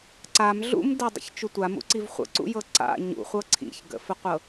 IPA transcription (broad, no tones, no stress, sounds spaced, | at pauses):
ǀ a m ɮ ṵ m d ə dˤ ə̰ ç t͡ʃ u tʷ a m ṵ ǀ i v χʷ ə̰ ǀ ṵ j ɤ ǀ a̰ ɲ ṵ χʷ ɤ ǀʰ ḭ ç ɡ ə̰ f ə qʷ ɤ